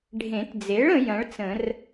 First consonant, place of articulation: retroflex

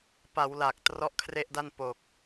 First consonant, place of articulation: labial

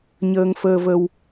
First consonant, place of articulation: palatal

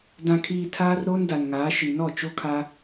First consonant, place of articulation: alveolar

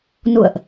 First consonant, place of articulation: alveolar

